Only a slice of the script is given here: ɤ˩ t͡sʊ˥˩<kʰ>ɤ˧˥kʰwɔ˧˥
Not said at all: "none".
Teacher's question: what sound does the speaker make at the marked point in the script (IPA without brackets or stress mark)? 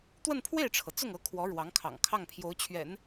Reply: ŋ